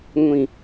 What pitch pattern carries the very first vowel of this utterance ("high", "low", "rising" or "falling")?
low